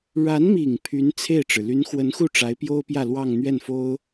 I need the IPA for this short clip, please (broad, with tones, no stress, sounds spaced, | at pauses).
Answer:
ɻ a˧˥ n m i˨˩ ŋ pʰ y˧˥ n t͡sʰ e˥˩ ɪ̯ ʈ͡ʂ ɻ̩˩ l y˧˥ n x w ə˧˥ n x u˥˩ ʈ͡ʂ a˧˥ ɪ̯ p j o˥ ʊ̯ p j ä˥˧ l w ɑ˥˧ ŋ n̪ ɥ ɛ˥˩ n f o˥ ʊ̯